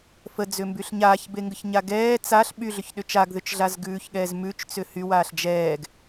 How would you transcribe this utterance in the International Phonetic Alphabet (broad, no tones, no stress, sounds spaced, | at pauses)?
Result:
f ə d͡z ʏ m b y ɬ ɲ aː ç b e ŋ ɡ ə ç ɲ a ɡ ɛː t͡s a ɬ ɓ y ɮ ʏ ç ɗ ʏ t͡ʃ a ɡ ð ʏ t͡ʃ ɮ a z ɡ ʉː ç ɠ ɛː z m ʉ t͡ʃ t͡s ʏ h y w aː ɬ d͡ʒ ɛː ɡ